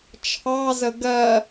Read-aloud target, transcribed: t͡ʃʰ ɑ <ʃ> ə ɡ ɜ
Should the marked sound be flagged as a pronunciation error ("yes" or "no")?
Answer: yes